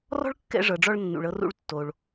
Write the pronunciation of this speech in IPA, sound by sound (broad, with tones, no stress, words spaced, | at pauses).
rɔ̤˥ɭkːɛ̰˧ʐɤ˩ɖ͡ʐɔ˧ɭ nːṵ˩ɭɤ˧rṵ˧ɭtːo˩ɭ